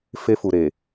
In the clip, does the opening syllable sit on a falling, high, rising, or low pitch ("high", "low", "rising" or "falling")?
high